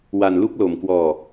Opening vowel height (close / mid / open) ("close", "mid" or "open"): open